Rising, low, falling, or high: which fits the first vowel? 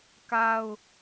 high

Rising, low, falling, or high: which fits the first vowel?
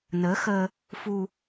rising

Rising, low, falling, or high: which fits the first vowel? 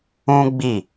high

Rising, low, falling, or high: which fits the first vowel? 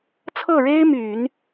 falling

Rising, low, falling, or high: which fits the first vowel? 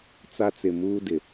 high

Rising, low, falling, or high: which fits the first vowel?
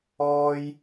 high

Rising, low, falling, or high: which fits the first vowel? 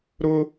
high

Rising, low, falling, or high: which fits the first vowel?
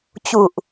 low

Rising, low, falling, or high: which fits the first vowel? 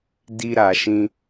high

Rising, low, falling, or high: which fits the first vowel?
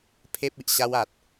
high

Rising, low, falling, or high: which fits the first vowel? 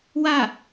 falling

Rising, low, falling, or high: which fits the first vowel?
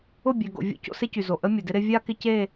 falling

